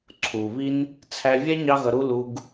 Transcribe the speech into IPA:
ǀʰu˨βi˦n | t͡sʰæ˧vʲɛ˦ ɲɑ˦ɣʌ˧ɾu˦ lu˧ɡ

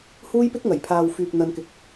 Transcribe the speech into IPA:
huː˥jpɪ˥k̚ ŋɐ˨˩jpʰaː˨w fyː˨k̚ n̪ɐ˧nkɪ˧k̚

